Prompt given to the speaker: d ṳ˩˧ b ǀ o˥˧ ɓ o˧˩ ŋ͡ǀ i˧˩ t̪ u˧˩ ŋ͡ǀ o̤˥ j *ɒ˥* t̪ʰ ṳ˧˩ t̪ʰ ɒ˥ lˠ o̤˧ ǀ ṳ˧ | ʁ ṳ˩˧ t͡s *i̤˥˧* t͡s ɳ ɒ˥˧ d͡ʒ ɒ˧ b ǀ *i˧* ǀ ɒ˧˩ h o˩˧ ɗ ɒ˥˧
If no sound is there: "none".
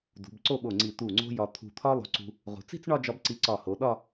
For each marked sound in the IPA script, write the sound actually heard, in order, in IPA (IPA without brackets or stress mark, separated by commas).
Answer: ɒ˧, i̤˥˧, i˧